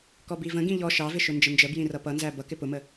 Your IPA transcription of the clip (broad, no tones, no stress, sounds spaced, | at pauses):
k ɔ b i v ə̃ ɡ ĩ ʎ ɔ ʃ ɑ v ɪ ʃ ʊ n d͡ʒ ə n d͡ʒ ə b j ĩ r ʌ p ʌ n z æ b ʌ k ɪ p ʊ m ə